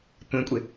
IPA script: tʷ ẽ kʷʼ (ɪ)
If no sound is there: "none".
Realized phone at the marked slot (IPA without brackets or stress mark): ɪ